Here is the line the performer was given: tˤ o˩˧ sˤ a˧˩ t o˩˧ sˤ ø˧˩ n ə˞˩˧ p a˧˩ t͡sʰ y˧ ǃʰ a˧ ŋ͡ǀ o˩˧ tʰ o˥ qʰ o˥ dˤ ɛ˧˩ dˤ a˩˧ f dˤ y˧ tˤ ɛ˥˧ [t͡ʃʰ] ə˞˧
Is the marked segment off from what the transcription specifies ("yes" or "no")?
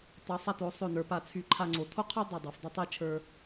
no